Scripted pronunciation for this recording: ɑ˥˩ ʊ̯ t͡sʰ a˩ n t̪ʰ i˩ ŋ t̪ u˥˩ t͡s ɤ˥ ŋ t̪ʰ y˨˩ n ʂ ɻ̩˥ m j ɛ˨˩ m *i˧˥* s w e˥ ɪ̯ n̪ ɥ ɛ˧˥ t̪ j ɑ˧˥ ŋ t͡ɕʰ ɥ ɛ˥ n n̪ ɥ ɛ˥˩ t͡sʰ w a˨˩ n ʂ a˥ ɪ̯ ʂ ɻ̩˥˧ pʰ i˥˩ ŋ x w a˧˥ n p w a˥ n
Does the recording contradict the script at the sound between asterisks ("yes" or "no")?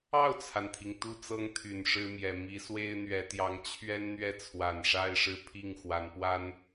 no